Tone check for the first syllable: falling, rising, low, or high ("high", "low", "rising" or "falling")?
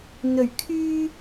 low